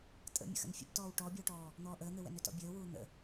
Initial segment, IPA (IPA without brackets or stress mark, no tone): tʼ